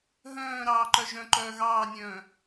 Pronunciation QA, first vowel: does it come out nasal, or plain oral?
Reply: nasal